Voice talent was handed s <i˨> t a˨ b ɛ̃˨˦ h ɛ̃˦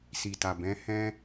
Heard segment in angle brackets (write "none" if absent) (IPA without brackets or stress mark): i˨